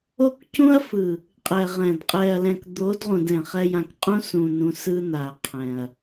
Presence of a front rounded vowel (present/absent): absent